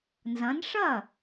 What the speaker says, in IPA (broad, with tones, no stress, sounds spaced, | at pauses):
n z ɐ̃˨˦ n ʂ ɐ˥˩